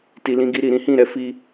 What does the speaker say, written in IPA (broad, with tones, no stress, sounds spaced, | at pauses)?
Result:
t i˨ l ĩ˧ ɡ i˧ ɾ i˨ ɾ ĩ˨˦ h ĩ˦˨ ɾ ɛ˨˦ f i˧